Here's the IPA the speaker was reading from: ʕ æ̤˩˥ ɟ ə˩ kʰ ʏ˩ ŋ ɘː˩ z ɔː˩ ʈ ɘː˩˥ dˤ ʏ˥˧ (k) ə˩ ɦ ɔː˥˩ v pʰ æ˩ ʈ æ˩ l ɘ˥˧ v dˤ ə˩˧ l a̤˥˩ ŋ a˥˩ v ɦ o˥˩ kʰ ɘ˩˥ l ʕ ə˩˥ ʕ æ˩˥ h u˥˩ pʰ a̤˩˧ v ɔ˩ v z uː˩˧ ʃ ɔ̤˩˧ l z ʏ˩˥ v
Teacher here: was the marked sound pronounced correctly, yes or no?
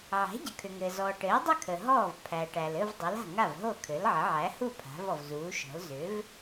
no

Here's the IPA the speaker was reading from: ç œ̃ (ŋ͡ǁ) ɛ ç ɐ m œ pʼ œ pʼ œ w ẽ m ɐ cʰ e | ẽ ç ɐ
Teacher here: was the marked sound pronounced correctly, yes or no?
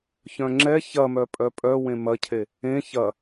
yes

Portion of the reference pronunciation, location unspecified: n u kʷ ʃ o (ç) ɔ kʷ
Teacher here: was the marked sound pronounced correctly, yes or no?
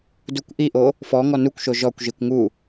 no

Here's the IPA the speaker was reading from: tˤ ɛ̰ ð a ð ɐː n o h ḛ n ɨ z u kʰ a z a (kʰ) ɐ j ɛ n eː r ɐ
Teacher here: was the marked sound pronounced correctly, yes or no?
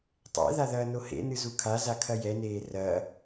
yes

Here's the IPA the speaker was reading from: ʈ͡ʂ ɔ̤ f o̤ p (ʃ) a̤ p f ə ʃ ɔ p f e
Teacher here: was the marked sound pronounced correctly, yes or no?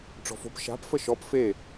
yes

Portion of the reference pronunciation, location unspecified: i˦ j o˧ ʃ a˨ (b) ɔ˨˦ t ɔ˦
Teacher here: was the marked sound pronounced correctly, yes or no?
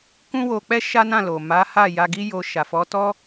no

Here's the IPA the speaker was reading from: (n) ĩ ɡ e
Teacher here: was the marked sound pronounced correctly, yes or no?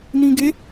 yes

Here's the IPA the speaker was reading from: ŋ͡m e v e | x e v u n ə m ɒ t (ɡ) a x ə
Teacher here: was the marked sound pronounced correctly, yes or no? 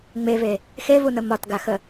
yes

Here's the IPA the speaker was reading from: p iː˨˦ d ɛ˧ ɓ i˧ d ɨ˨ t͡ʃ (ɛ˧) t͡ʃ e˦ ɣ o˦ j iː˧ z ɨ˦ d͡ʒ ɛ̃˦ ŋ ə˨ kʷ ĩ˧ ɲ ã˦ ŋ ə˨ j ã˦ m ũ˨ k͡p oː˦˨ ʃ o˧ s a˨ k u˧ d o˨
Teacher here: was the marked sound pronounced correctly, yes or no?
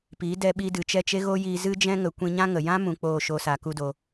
no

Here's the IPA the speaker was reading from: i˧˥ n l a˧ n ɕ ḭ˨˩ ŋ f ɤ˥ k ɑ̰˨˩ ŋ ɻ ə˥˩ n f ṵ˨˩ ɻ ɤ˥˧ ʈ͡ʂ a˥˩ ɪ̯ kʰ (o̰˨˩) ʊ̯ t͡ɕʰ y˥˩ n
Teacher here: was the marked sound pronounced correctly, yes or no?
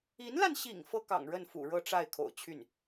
yes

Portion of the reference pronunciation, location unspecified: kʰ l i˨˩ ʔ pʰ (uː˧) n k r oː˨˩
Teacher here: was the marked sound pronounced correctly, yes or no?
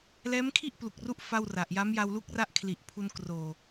no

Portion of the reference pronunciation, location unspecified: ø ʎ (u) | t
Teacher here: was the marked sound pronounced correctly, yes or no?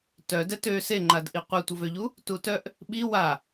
yes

